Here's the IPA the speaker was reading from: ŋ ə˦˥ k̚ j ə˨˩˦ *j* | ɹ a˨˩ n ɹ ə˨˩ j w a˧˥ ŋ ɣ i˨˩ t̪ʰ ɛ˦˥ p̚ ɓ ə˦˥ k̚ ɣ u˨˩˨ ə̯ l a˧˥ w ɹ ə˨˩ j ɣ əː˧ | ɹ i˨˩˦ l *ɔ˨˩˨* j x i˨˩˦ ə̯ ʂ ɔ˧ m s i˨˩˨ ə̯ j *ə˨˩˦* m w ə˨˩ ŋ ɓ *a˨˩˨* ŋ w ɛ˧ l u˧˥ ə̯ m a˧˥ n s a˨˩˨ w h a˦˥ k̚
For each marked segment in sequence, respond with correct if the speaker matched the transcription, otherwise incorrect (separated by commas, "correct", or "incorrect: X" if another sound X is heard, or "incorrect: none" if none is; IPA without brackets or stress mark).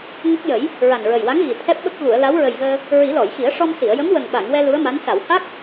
correct, correct, incorrect: ə˧˥, correct